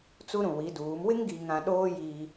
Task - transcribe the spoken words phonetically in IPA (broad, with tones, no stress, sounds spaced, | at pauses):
t͡s u˦ ɾ ũ˨ w i˨˦ d uː˨˦ m w ɪ˦ ŋ ɡ i˨ ŋ ã˨ ɗ oː˦ j iː˦